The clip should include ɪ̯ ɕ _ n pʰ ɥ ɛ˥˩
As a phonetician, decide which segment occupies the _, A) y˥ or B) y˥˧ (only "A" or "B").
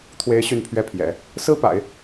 B